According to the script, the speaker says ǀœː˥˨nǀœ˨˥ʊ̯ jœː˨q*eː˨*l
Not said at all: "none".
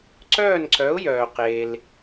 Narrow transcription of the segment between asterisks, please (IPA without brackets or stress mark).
eː˨